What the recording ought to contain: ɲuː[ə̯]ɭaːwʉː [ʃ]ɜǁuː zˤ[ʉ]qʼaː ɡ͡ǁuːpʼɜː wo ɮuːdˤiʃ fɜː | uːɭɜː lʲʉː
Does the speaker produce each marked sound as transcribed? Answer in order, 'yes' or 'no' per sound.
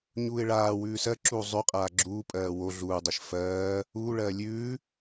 no, no, yes

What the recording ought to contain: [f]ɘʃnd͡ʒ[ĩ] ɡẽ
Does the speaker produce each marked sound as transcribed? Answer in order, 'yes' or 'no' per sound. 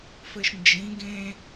yes, yes

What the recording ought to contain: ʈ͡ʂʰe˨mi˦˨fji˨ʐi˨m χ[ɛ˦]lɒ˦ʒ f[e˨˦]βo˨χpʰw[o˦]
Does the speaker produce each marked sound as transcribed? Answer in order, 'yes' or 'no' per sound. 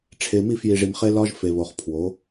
no, no, no

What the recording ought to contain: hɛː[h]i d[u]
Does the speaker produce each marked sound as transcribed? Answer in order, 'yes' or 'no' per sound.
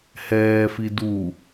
no, yes

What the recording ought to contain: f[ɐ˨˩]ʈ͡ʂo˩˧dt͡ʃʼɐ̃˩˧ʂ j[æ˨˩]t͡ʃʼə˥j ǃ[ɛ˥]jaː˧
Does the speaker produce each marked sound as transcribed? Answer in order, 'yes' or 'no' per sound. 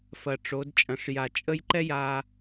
yes, no, yes

